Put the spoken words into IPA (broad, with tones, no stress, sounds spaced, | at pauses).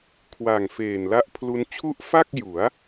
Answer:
kʰ w aː˨˩ ŋ f eː˨˩ n l a˦˥ ʔ pʰ l u˦˥ n t͡ɕʰ u˦˥ ʔ f a˥˩ k̚ j u˩˦ a̯